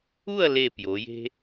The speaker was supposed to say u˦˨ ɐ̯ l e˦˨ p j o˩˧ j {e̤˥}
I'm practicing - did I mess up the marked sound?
no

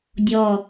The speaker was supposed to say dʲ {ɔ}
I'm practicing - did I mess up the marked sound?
no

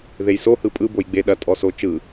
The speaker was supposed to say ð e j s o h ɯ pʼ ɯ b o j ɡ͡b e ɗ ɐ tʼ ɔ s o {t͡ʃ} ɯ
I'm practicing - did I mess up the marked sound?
no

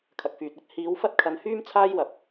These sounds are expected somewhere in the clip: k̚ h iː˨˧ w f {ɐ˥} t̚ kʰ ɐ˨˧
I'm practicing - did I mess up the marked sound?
no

